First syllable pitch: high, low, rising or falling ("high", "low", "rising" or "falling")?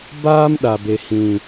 high